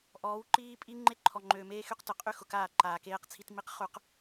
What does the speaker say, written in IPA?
ʔɔː˨˦wǃiː˦ pʼi˦ŋ͡ǃe˦ǃʰɔ˨ŋ͡ǃøː˨ meː˦xy˦qtʊ˨ qʼy˦ xʊ˨kaː˦˨ ǃaː˨keː˦qt͡sʰi˦t mi˦qχu˦q

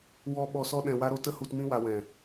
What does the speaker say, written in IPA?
wɔ˧ ɓɔ˧sɔ˦ ɗɛ̃˧wa˦ɾo˦ tə˦hu˧tmĩ˦ wa˧wɛ̃˨

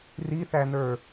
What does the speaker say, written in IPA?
riθænə˞

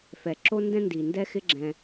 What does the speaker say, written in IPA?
fɛ˩ ǁo˦ndɛ̃˦ndi˩ndɛ˦ xɪ˦ɡ͡ǁɛ̃˨

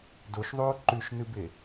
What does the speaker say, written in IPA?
doʃðˤoː ǃʉʃnɨbe

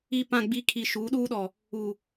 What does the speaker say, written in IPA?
i˨pã˨ ɡ͡bi˨kʰi˨ ʃuː˨˦ɗuː˦ɗɔ˨ | u˨

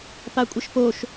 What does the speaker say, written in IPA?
pakʷʼəʃpoʃ

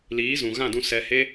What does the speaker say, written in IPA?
liː˨˦zũ˨ ɣã˦˨dũ˧ sɛ˧he˦

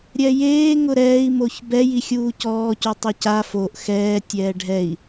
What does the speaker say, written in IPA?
ɾʲɛjeː ŋʊɾɛːi̯ moçbɛ jixʲuːcɔː cutˤuca foʔ xɛː tʲɛːɖʱɛi̯

